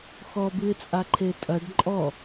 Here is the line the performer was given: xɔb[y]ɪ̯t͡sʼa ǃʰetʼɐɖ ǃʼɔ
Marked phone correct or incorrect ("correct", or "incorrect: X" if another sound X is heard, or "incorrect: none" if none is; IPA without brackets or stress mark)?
incorrect: ɨ